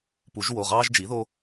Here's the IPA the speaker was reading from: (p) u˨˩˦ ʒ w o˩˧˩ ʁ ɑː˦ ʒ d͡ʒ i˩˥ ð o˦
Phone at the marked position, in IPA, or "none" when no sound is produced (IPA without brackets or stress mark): p